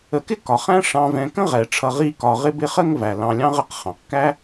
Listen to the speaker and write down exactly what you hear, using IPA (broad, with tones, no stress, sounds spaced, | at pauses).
ə˨ k ɪ˥ k ɒ˩ χ æ̃˥ ʂ ɑ̃˨ v ɛ̃˨ k ə̃˥ ʁ ɛ˩ ʈ͡ʂʰ ʌ˨ ʁ i˦ k ɒ˨ ʁ ɪ˥ b ɪ˥ χ ə˥ ŋ v æ˩ l ɑ̃˨ lʲ ɑ̃˦ ʁ ə˦ q χ ɑ̃˩ q k æ˦